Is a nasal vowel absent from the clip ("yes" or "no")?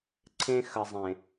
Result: no